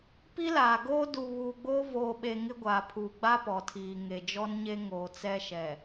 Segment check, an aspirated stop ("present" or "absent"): present